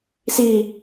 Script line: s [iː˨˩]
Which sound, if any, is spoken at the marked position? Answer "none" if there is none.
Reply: iː˧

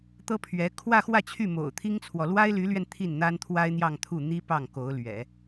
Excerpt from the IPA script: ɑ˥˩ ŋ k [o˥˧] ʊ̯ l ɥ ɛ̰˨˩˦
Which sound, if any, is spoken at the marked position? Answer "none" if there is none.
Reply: o˧˥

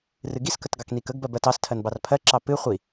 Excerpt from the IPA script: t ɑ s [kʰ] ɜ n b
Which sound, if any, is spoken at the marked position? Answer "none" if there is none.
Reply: tʰ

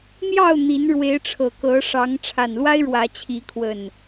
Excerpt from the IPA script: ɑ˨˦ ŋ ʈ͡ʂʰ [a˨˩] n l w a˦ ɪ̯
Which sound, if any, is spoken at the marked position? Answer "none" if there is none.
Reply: a˨˩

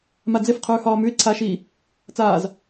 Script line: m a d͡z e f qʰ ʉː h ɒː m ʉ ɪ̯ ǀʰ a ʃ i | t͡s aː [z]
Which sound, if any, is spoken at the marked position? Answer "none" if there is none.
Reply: z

